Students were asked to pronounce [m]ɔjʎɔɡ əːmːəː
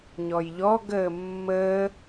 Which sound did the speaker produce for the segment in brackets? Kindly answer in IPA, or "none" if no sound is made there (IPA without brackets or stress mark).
ɲ